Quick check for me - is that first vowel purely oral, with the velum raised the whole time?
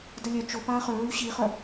yes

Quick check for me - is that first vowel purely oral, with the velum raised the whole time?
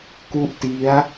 yes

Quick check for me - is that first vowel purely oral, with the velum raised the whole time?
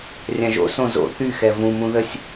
no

